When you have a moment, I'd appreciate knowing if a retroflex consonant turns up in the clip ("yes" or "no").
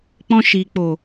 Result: no